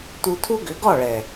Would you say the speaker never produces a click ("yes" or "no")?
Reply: yes